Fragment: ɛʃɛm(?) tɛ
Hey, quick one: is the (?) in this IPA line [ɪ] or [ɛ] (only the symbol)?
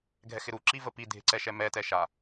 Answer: ɛ